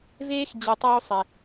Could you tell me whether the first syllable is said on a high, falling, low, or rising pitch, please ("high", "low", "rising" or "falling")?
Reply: high